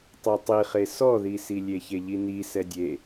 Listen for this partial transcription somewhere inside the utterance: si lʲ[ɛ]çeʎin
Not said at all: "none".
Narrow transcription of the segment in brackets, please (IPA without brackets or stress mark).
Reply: e